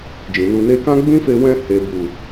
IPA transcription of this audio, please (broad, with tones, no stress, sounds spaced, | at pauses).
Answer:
d͡ʒ ĩ˨ n u˧ n e˧ k ã˦ ɡ͡b ĩ˦ f e˧ w ɛ̃˧ h e˨ b u˨